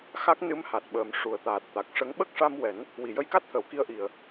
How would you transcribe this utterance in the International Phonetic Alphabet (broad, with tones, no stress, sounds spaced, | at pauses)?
x a˦˥ k̚ n ɨ˧˥ m h a˨˩ t̚ ɓ əː˨˩ m ʂ u˨˩ ə̯ t̪ aː˨˩ t̚ t̪ a˨˩ k̚ ʂ ə˧˥ ŋ ɓ ə˦˥ k̚ ʂ a˧ m w ɛ˨˩˦ n | w i˨˩˨ j ə˧ j k a˦˥ t̚ t̪ʰ ə˨˩˨ w k i˧ ə̯ ʔ i˨˩ ə̯